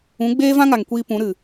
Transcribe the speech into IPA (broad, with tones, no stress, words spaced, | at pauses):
ũ˨˦ɡ͡beː˦vã˦ŋa˨ŋ kʷiː˧pũ˨˦ ɾɨ˨